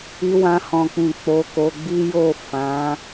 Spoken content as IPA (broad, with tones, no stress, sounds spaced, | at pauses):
i˧ w ã˧ h ɔ̃˨ k͡p ĩ˨ k͡p o˨˦ k o˧ ɡ͡b i˦ j o˦˨ f ã˨˦